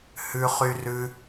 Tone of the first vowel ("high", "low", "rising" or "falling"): high